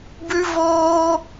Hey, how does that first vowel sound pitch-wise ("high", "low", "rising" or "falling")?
high